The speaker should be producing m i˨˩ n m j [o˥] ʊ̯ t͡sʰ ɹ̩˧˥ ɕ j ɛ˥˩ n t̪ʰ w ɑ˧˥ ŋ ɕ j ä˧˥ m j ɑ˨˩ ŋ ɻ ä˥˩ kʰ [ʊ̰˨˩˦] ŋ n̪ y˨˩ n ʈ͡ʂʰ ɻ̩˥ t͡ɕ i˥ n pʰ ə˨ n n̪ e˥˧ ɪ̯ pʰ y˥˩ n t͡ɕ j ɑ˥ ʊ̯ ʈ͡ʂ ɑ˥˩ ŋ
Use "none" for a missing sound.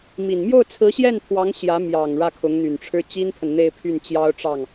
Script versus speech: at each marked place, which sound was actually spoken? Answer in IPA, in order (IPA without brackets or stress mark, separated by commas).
o˥˩, ʊ˧˥